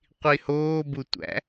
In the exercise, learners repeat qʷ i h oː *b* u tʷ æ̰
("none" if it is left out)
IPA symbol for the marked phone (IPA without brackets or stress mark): b